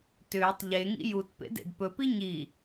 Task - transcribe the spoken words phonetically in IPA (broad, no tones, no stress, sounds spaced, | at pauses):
t ʏː tˤ ʎ e ŋ ḭ j u t p ḛ d ḛ d p ɵ p i ɲ i